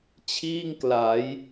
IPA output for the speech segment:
t͡ɕʰiː˥˩ŋkla˩˦j

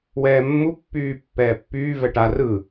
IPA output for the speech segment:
wɛːmːupːyː pːɛːpːyː vɛʈa rɯ

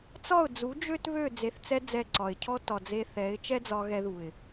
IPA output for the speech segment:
t͡sɒ˦˨ʊ̯d͡zu˨˦ d͡ʒø˦t βø˦˨ d͡ze˨θt͡sɛ˧ d͡zɛ˦˨ ǀɒ˨ɪ̯cʰɔ˦ tɒ˨d͡ze˧ θɛ˨˦ɪ̯ t͡ʃɛ˦d͡zɒ˧ɣɛ˧ ðu˨ɪ̯

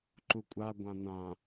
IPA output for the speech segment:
ǃukʷʼa ɡʷãnã

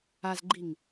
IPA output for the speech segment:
azɡ͡ǃiŋ

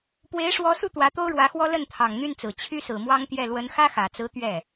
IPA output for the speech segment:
pwe˧˥ɪ̯ʂwɔ˧˥su˥˩ t̪wä˧˥t̪o˥ʊ̯ɻwä˧˥xwɔ˥ lə˥˩nt̪ʰɑ˨˩ŋn̪y˥˩nt͡sɹ̩˨˩ t͡ɕʰy˥sɹ̩˨˩mwɑ˥ŋt̪jɛ˥˩ lwə˧˥nxä˥xä˨˩t͡sɹ̩˧˥ t̪ɥɛ˥˩

